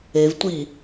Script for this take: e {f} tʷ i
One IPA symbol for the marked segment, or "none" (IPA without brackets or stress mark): v